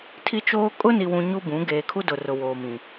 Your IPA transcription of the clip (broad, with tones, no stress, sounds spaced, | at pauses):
tʰ i˦ t͡ʃ oː˦ kʼ ʊ˦ n i˨ w ũ˨ ɲ u˦ b ũ˨˦ ɡ eː˨ kʰ u˦ d ʊ˨ r ʊ˨ w oː˨ m ĩ˨